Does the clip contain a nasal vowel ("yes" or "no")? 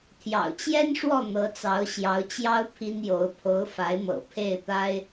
no